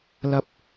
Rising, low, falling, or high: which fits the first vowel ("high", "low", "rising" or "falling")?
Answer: rising